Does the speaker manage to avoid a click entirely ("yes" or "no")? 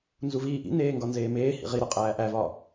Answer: yes